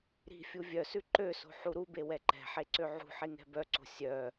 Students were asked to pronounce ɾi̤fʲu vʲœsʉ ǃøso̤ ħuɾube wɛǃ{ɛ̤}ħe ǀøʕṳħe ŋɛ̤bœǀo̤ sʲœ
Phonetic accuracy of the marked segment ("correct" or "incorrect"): correct